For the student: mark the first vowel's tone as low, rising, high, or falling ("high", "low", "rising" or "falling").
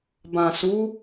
low